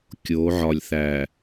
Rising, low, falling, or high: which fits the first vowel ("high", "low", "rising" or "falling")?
rising